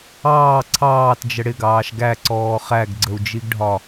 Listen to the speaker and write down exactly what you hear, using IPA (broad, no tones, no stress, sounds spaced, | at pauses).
ɑː ǀʰ ɑː t d͡ʒ ə ɽ ɪ ɡ ɑː ʃ ɡ æ ǀ ɔː χ æ ɡ ɡ͡ǀ ə u̯ d͡ʒ i ɡ ɖʱ ɒ